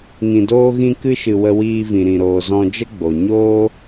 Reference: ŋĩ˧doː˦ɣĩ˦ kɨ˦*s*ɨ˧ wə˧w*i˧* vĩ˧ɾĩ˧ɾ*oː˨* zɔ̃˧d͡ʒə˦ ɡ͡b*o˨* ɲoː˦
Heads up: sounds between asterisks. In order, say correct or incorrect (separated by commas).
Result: incorrect, incorrect, incorrect, correct